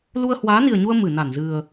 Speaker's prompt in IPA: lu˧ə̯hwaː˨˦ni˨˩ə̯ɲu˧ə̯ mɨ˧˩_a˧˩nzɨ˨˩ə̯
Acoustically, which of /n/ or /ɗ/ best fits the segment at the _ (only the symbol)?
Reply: n